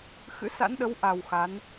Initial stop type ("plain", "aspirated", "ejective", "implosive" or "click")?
implosive